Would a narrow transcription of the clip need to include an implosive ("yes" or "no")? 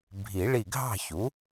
no